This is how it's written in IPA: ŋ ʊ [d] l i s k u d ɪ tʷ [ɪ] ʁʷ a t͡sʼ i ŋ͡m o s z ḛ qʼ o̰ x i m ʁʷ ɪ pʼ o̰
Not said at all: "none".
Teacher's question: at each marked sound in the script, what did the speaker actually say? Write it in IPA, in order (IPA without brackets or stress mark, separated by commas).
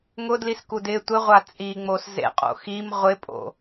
d, ɪ